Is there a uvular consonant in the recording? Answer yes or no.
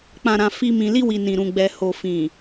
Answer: no